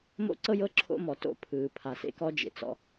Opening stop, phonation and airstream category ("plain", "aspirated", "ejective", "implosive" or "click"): click